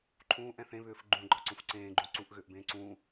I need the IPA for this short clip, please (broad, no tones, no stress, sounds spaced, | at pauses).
ǃʰ ũː ʔ ɛ̃ θ ẽ β ʏː f ɡ͡ǃ ũ ɡ͡ǃ ɒ ǀ ũ f ǀ ẽː ɡ͡ǃ ũ ǀ u ʔ ɣ ʏː ʔ b ẽː ǀ ũː